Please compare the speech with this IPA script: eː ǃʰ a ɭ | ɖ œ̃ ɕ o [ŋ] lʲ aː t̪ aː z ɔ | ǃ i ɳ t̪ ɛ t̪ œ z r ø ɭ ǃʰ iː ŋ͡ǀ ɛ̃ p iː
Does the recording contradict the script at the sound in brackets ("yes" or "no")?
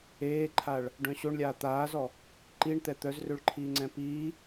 yes